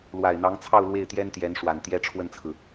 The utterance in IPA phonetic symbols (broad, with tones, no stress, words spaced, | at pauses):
lwa˨˩ɪ̯n̪ɑ˧˥ŋt͡sʰɑ˥˧ʊ̯ lwe˥˩ɪ̯t̪jɛ˥nt̪jɛ˧˥n ʂwa˨˩nt̪jɛ˥ ʈ͡ʂʰwə˥˩nt͡sʰɹ̩˩